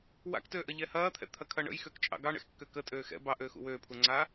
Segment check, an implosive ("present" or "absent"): absent